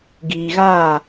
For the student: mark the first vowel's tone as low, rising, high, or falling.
low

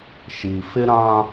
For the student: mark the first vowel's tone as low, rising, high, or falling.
low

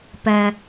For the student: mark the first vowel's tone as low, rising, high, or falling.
low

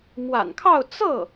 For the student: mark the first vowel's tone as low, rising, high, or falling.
low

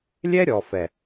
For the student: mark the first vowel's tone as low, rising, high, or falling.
high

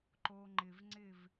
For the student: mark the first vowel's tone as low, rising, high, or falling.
low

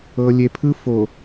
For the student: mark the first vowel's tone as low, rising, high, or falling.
low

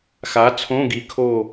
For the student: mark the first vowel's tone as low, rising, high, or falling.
rising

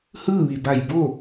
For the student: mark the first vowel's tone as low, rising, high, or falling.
falling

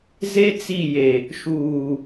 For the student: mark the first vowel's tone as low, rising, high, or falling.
high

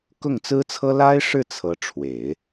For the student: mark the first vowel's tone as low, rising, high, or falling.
falling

